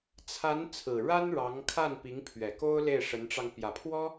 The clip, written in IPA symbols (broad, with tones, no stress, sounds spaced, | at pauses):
t͡sʰ a˧˥ n t͡sʰ ɹ̩˨˩ ɻ a˥ n ɻ ɑ˧˥ ŋ kʰ a˥˩ n p i˧˥ ŋ pʰ ɥ ɛ˨˩ k o˥ ʊ̯ l e˥˩ ɪ̯ ʂ ə˧˥ n ʈ͡ʂ ɑ˧ ŋ p j ä˨˩ pʰ w ɔ˥